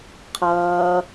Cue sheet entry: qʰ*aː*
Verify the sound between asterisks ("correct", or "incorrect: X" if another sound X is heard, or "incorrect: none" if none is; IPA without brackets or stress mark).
incorrect: ʌː